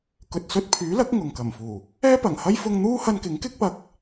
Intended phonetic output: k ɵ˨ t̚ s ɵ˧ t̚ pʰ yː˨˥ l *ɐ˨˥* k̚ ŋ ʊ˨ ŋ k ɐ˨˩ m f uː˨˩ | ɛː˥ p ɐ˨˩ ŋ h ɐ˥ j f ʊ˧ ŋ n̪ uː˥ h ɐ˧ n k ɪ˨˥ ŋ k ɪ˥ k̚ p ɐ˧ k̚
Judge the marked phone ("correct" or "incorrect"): correct